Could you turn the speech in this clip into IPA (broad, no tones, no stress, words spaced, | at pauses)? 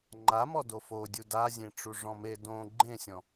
ŋ͡ǃamɔ dofodʲu dazʲẽ ʈ͡ʂuʐɔ̃me dõ ɡ͡ǃẽsʲɔ̃